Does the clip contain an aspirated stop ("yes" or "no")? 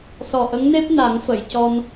no